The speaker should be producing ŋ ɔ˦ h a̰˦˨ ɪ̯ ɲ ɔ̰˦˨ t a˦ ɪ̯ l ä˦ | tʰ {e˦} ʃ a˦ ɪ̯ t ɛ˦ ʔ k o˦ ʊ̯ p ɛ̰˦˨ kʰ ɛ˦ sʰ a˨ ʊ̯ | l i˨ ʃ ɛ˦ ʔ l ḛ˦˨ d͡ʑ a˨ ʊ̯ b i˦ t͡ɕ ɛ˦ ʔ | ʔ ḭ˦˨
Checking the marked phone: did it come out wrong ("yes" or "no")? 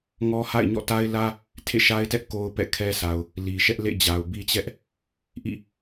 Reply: yes